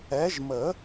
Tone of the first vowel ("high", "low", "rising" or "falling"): rising